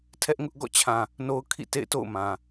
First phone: tʰ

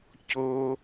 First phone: c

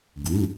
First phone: ɡ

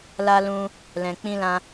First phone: l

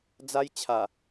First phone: d͡z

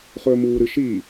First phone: χ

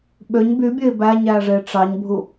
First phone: ɓ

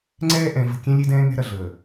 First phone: ŋ͡ǀ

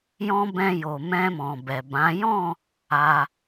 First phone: j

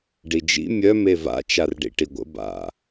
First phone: ɖ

